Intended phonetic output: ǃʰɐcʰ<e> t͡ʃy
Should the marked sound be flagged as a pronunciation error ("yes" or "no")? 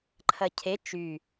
no